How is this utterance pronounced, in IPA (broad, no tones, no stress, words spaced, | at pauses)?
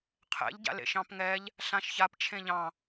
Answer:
qʰɛ̰ʎɟa̰ lḛʃɑ̃pŋɛʎ | ɬãʃçap t͡ʃʰẽʎɑ̃